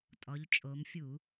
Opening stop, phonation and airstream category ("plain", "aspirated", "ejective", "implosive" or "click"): ejective